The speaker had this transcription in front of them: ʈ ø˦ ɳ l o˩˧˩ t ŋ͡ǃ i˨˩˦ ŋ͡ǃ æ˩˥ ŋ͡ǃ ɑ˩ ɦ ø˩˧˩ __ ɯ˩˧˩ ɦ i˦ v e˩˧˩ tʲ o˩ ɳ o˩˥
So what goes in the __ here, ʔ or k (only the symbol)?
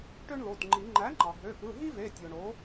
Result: k